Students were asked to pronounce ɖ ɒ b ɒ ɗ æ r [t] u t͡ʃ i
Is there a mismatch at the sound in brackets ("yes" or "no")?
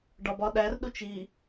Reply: yes